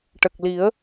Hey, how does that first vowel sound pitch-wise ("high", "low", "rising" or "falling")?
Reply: low